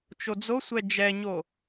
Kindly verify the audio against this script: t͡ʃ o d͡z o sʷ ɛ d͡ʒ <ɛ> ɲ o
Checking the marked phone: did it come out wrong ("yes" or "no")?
no